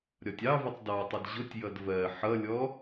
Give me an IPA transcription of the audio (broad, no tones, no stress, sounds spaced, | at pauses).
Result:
ɾʲ ɒ tʲ ɑ v ʊ tˤ d ɑ tˤ ə d ʑ ʊ tʲ j ʌ d v ɜ ħ ʌ lʲ ɔ